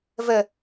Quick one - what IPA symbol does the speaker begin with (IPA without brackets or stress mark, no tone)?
v